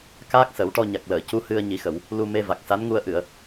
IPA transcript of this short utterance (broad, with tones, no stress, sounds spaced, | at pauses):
k aː˦˥ k̚ s ə˨˩˦ w ʈ ɔ˧ ɲ a˨˩ k̚ l əː˨˩˨ c u˧˥ h ɨ˧ ə̯ ɲ i˨˩˦ x ə˨˩˨ w | l u˧ m e˧ v a˨˩ k̚ s a˧˥ n ŋ u˧ ə̯ ʔ ɨ˨˩˨ ə̯